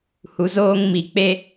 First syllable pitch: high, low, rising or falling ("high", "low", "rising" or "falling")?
low